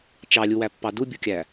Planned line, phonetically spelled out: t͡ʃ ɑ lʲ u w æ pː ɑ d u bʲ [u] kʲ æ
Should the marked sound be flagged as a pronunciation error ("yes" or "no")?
no